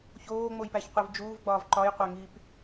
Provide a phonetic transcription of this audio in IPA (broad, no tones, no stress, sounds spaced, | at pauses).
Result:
ç oː ŋ͡m o j p æ ç qʷ i v d͡ʒ uː v ɡ͡b ɒː v ǃ ɒ j qʷ æ ŋ iː p